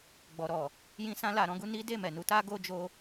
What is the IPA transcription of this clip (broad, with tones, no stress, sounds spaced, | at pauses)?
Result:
ɡ͡b ɔ˨ ɾ ɔ˨ | j ĩ˧ s ã˧ l a˨ ɾ ɔ̃˨˦ ɡ u˧ n i˦ d e˦˨ m ɛ˨ n u˨˦ t a˦ ɡ o˦ d͡ʒ o˦